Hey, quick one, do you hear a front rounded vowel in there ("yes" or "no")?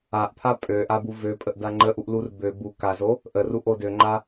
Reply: yes